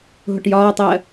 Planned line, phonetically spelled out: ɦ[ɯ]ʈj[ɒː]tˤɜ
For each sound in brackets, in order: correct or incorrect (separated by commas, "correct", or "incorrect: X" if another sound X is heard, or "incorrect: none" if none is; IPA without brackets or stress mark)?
incorrect: ʊ, correct